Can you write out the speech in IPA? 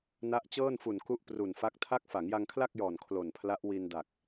na˦˥ʔt͡ɕɤː˥˩nfu˨˩n ku˥˩ʔpru˨˩n fa˦˥k̚tʰa˥˩k̚ fa˩˦ŋja˧ŋkʰla˥˩k̚jɔː˨˩n kʰlo˨˩npʰla˦˥ʔ wi˧nda˨˩k̚

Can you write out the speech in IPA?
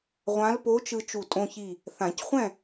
ʁʷã˧˥lpo˧˥t͡ʃɯ˧ t͡ʃu˧˩tʼõ˧çi˧˩ | θã˨˩˦cχʷɛ̃˥˨

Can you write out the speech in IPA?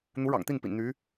n̪u˧˥ɻɑ̰˨˩ŋt̪i˥˩npḭ˨˩n n̪y˧˥

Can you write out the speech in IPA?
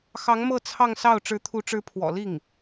xɑ˧˥ŋ mɤ˥˧ t͡sʰɑ˥˧ŋsɑ˥˩ʊ̯ ʈ͡ʂɻ̩˧˥t̪ʰu˧˥ʈ͡ʂɻ̩˧˥ pʰwɔ̰˨˩ li˥˩ŋ

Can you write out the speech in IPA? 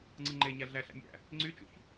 ŋ͡ǀɯŋ͡ǃeɲæ ɮæɬæ̰mʲæ̰ | ŋ͡ǀyt͡ʃṵç

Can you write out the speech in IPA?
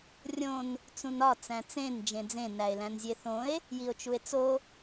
rʲõn | t͡sũnɒ t͡sæ̃t͡sẽn d͡ʒẽd͡zẽ næe̯læ̃nzʲeθõe̯ | jio̯t͡ʃue̯t͡so

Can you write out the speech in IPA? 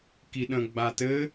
kiɗə̃ ɡ͡batɘ

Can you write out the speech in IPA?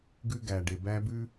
ɡʉ˦ɡæ˨ɖe˨ bæ˦bʉ˦

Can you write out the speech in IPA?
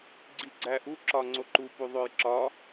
ɡ͡ǀiɡ͡ǀæʔu ǁɒŋ͡ǀoǃu puðˤojǁɒ

